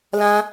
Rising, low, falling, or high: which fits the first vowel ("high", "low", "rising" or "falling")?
high